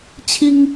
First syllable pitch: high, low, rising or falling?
high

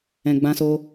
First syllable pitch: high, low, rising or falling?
low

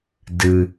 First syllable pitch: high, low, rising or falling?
low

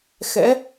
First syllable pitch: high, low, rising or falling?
rising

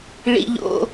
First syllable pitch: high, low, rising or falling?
high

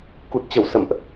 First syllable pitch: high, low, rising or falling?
low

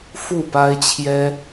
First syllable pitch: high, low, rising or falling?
falling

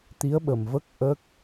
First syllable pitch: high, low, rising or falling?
rising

